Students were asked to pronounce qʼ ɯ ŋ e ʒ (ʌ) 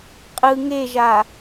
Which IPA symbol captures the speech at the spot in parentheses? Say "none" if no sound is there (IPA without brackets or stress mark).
a